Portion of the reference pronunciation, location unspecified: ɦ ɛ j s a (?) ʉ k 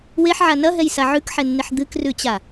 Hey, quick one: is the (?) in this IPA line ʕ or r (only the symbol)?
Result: ʕ